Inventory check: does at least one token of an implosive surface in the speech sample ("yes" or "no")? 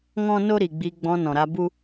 no